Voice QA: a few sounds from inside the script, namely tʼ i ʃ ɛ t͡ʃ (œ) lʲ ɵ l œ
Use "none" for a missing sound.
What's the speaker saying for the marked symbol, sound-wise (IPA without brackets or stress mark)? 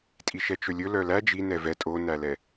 ɵ